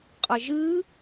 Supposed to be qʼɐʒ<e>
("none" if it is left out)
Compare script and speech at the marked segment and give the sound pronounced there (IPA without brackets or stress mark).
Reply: ɨ